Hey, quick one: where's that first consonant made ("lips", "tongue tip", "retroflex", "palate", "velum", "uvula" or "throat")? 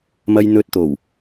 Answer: lips